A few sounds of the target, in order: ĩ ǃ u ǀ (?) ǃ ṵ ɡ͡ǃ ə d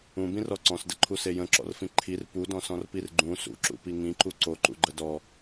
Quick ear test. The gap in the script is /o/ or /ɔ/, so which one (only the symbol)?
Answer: o